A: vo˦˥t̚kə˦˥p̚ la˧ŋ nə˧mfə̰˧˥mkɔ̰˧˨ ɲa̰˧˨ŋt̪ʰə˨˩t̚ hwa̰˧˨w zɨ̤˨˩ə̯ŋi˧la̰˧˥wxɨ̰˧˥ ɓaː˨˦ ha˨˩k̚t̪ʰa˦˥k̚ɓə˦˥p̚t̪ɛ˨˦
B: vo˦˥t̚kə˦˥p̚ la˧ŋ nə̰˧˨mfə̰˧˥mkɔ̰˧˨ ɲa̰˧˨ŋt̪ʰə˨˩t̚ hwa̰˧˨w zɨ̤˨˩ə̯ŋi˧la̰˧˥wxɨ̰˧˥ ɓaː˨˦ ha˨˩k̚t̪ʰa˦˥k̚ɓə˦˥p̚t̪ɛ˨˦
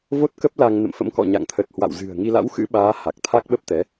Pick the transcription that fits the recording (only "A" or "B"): B